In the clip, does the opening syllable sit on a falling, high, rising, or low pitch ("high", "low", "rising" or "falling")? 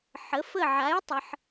rising